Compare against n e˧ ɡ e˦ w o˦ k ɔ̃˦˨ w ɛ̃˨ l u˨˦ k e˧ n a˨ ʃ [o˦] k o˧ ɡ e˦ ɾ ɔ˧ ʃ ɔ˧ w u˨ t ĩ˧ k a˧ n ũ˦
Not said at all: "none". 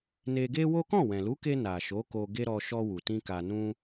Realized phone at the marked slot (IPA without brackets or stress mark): o˨˦